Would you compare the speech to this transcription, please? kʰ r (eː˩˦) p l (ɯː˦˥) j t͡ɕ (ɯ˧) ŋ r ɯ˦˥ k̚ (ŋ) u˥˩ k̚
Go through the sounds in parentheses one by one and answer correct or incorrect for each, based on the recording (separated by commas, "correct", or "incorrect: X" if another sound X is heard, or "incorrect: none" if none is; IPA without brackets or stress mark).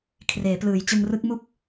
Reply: correct, incorrect: ɯː˩˦, correct, incorrect: m